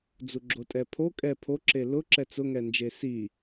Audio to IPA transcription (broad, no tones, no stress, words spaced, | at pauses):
d͡zuɡ͡ǁotʼɛpʰo kʼɛ pʰoǁe lʊ ǁɛt͡sʊŋɛnd͡ʒe si